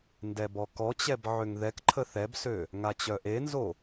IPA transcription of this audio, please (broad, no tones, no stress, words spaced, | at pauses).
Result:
ndɛbɔkɔt͡ɕɛb ʕøŋðɛkǃʰə θɛbsø | ŋat͡ɕœʔenzo